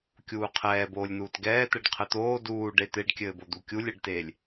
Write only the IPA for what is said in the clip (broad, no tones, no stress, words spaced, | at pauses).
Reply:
kʲuːqʰɛːboːlʲnuːt ɡɛː t̪ɛɖqʰɘt̪oː duː ɖet̪eɖkʲɘːbo d̪ukʲulʲɛɖteːlʲ